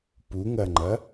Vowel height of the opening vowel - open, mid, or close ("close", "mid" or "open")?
close